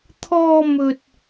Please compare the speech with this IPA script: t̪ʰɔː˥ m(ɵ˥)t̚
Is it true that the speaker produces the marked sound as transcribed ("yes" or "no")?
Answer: yes